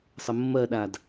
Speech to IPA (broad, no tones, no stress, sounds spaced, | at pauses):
sˤ ə mː ɜ ɗ a d